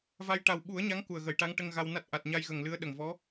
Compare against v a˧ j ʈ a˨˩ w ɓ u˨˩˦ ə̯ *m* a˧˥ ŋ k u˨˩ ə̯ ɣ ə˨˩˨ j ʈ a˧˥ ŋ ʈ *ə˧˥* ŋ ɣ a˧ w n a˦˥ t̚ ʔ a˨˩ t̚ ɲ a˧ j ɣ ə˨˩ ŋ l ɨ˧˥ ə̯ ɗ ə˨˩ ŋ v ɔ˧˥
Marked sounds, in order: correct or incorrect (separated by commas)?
incorrect, incorrect